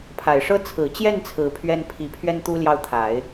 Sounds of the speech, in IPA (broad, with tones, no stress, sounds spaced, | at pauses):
pʰ a˨˩ ɪ̯ ʂ ɤ˥ t͡sʰ ɹ̩˨˩ t͡ɕ j ɛ˥˩ n t͡sʰ ɹ̩˨˩ pʰ ɥ ɛ˥ n pʰ i˧˥ pʰ ɥ ɛ˥ n t̪ u˥ l j ɑ˥˩ ʊ̯ t̪ʰ a˨˩˦ ɪ̯